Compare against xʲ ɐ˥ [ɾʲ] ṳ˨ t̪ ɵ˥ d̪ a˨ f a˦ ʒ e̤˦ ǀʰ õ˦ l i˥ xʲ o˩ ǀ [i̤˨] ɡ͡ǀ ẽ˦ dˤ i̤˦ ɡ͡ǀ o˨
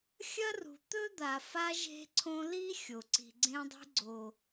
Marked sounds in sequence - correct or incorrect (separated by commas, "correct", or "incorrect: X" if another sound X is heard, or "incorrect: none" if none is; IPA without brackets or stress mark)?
incorrect: r, correct